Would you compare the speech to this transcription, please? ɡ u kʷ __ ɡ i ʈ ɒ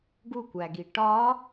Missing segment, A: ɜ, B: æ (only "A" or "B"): B